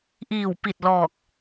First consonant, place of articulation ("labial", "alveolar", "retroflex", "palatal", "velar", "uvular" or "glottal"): glottal